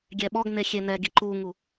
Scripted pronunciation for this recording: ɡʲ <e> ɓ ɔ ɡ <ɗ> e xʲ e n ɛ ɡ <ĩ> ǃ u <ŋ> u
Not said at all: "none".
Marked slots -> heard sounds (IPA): ɛ, n, i, ŋ

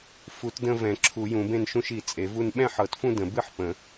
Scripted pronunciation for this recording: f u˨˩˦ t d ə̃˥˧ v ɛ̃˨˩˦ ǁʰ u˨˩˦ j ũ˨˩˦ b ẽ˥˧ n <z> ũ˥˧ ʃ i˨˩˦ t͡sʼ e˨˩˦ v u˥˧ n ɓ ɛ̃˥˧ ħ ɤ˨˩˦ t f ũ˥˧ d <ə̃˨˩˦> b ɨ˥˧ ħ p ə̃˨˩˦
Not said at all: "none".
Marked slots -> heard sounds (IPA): ʃ, ə̃˨˩˦

